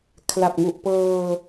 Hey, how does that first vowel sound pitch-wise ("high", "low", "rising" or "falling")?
low